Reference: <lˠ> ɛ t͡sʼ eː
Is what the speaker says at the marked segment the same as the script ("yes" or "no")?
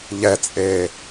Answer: no